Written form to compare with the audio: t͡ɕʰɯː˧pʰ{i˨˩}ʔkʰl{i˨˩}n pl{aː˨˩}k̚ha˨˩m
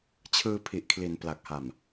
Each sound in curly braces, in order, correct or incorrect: correct, incorrect, incorrect

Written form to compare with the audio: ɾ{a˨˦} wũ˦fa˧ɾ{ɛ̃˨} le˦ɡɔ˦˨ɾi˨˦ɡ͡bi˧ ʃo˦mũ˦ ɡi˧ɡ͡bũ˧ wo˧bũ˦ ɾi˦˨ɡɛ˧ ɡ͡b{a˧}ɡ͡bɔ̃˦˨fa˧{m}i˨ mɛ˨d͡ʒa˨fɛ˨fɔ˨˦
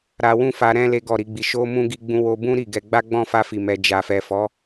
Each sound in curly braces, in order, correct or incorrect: incorrect, incorrect, incorrect, incorrect

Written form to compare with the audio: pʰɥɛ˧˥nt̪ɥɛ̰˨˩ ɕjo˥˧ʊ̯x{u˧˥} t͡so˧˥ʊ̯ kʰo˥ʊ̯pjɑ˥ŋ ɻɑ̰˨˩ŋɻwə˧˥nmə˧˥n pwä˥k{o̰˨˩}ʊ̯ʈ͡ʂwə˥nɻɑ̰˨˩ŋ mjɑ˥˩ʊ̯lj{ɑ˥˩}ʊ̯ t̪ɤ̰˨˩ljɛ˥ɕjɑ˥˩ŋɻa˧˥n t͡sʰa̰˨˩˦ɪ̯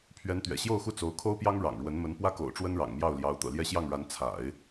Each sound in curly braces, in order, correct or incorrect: incorrect, correct, incorrect

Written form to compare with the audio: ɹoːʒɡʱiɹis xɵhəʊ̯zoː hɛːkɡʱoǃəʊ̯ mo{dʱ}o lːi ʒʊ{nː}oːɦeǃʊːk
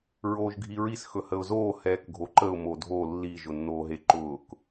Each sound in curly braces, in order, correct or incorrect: correct, correct

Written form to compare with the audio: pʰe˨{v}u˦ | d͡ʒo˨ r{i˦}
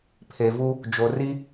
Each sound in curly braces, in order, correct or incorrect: correct, correct

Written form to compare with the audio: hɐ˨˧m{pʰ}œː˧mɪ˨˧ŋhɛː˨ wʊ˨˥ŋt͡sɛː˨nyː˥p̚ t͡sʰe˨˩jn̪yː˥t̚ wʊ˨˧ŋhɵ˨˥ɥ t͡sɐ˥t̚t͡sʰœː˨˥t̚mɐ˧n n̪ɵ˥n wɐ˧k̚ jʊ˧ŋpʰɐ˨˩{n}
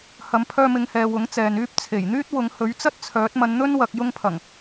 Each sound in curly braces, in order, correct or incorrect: correct, incorrect

